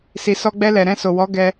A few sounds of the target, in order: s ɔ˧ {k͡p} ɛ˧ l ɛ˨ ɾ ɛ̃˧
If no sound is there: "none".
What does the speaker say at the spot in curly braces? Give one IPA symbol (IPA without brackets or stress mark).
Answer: ɡ͡b